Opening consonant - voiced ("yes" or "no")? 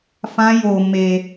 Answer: no